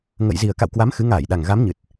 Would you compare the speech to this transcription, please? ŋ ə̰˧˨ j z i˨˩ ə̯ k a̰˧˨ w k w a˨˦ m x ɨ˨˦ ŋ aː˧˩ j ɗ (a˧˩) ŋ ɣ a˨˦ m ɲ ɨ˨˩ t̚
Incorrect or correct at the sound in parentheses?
incorrect: a˨˩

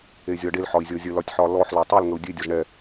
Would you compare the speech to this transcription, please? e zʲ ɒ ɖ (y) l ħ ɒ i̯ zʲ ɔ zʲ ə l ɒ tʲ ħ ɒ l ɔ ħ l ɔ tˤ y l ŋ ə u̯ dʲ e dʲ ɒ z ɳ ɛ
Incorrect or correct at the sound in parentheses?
incorrect: e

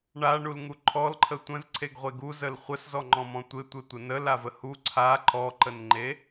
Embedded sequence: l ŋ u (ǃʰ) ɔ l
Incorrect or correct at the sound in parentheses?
correct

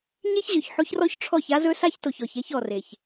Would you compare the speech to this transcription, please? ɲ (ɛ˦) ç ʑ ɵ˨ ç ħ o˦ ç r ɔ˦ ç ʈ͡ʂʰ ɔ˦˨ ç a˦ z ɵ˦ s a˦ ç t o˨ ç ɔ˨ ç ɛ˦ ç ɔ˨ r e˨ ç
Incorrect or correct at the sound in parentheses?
incorrect: e˦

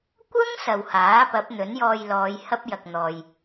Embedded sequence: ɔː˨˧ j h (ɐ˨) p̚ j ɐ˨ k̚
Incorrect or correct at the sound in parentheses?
incorrect: ɐ˥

